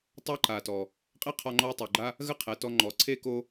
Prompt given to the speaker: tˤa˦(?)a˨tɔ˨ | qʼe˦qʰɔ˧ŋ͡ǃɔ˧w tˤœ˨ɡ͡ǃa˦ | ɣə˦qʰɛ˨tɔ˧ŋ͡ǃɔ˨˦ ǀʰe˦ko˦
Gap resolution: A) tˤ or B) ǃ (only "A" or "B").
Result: B